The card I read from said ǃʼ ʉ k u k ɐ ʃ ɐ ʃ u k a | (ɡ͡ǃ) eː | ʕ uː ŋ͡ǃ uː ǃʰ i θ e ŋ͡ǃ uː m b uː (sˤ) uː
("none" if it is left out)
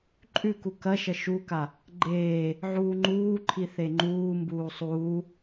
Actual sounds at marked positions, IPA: ɡ͡ǃ, sˤ

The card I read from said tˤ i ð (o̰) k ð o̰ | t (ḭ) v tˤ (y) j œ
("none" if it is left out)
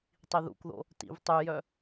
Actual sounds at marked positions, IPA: ṵ, ḭ, y

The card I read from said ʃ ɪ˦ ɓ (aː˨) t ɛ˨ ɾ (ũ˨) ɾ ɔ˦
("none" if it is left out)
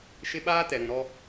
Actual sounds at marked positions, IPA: aː˦, ũ˨

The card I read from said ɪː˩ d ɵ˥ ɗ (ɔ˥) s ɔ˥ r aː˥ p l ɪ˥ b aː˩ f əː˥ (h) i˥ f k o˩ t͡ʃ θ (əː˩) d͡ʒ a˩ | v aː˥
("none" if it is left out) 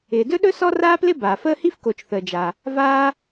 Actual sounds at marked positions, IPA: ɵ˥, h, əː˩

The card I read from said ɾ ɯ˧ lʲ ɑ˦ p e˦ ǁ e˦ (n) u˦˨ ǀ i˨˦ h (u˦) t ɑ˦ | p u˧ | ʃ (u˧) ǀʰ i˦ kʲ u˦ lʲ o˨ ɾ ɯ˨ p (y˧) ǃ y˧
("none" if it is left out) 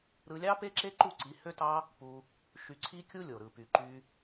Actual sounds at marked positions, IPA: ǃ, ø˦, y˧, y˨

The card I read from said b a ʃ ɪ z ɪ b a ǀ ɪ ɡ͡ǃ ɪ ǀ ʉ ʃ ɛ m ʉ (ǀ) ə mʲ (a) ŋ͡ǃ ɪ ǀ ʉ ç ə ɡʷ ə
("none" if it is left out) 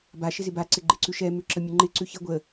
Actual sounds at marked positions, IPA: ǁ, ə

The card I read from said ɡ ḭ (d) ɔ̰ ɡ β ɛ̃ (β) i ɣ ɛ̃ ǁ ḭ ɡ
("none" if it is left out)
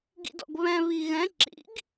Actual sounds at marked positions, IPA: d, β

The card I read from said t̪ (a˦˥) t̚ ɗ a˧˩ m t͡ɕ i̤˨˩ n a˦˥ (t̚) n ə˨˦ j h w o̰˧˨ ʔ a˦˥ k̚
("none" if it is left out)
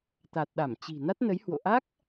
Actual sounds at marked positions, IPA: a˨˩, t̚

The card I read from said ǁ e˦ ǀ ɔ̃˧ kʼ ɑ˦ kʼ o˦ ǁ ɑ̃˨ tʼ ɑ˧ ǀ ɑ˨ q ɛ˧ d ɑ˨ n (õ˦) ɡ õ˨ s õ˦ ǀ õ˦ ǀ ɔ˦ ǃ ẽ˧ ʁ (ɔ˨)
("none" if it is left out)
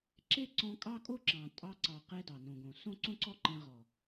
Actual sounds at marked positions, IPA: õ˨, ɔ˨

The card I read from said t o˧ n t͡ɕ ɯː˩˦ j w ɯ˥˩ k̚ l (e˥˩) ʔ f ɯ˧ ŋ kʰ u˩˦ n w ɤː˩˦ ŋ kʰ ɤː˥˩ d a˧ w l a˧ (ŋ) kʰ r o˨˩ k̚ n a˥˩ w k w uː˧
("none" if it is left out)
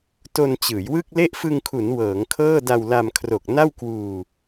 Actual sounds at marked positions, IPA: e˥˩, m

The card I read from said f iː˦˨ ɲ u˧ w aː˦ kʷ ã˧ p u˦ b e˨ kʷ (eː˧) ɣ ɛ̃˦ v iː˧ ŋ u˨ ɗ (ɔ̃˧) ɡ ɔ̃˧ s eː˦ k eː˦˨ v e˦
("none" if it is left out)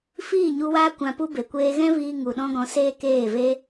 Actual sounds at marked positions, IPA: eː˧, ɔ̃˦

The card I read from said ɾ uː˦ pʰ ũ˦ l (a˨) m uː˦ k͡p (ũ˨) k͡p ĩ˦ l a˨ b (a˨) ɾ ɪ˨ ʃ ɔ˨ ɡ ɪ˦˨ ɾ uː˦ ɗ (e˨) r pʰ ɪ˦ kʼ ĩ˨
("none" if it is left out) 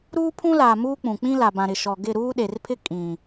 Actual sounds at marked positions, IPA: aː˨, ũ˨, ã˨, e˨

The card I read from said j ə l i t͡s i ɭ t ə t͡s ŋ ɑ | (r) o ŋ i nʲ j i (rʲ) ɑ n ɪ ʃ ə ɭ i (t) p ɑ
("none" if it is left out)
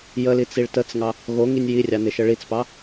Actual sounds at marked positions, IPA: ɣ, rʲ, t͡s

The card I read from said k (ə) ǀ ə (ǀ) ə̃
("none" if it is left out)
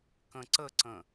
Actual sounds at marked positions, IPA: ə̃, ǀ

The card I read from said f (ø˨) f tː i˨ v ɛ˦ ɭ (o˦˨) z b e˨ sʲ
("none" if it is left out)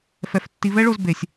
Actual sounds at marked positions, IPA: ɛ˨, o˦˨

